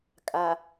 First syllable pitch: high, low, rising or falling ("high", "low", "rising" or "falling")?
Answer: low